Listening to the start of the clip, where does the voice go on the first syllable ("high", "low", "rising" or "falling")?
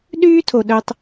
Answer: high